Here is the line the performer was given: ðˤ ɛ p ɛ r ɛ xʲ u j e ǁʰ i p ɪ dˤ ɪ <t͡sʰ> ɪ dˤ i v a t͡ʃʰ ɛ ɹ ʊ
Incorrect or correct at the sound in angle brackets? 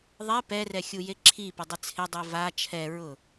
correct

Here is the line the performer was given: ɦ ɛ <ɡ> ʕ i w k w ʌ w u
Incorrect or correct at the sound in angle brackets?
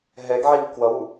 correct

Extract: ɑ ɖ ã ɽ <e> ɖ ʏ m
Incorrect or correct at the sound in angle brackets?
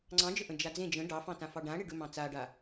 correct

